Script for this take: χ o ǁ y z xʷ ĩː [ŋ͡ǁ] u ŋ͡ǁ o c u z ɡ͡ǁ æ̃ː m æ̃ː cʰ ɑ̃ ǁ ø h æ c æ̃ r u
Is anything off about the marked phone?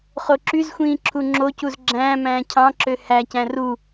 yes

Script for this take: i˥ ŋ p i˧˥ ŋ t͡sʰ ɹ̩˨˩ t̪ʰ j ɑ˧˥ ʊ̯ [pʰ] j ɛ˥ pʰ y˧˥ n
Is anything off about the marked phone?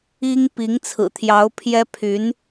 no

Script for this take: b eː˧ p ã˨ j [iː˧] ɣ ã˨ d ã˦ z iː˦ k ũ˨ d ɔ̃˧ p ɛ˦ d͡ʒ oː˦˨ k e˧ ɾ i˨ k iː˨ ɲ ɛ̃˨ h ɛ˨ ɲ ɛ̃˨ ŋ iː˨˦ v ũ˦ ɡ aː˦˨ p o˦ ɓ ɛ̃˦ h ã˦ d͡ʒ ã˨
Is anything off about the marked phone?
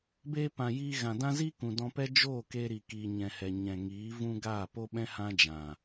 no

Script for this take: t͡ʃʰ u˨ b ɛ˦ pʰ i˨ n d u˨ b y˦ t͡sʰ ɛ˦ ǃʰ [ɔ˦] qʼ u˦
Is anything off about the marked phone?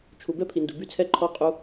no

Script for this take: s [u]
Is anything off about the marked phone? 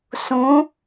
yes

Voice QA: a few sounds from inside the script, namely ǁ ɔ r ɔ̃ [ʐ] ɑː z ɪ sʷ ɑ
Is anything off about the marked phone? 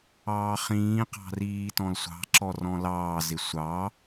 yes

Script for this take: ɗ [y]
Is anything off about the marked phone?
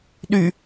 no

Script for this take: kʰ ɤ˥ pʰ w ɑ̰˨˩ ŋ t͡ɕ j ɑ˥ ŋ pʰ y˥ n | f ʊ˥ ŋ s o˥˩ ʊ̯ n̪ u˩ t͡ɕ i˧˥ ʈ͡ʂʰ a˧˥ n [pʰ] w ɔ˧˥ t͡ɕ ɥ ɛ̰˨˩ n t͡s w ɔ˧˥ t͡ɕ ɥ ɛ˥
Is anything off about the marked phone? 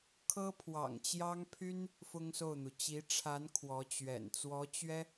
yes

